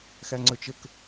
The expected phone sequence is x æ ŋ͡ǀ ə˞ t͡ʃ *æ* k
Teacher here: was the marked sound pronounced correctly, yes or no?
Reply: no